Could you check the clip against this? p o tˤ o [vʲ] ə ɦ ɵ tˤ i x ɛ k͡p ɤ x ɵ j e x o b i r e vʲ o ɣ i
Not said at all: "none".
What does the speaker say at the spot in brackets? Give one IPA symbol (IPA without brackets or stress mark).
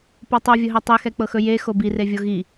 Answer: vʲ